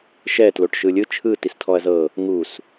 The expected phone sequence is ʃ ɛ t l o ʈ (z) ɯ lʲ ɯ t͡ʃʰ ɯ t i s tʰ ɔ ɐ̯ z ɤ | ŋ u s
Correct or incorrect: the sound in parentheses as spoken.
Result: incorrect: ʃ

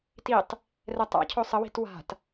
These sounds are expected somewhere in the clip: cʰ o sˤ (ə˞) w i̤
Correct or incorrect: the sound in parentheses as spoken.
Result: incorrect: ə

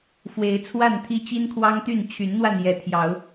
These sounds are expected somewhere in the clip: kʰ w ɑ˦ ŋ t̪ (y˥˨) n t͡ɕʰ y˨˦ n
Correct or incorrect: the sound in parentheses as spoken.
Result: correct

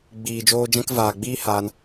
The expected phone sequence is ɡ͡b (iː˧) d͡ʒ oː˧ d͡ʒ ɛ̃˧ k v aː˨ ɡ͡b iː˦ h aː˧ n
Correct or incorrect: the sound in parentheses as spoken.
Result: incorrect: iː˨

